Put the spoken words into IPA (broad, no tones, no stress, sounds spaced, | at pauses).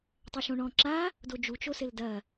tˤ ɛ ʃ õ ɳ ɔ̃ ǁ a | d o d͡ʒ u t͡ʃ o s ɘ l d ɐ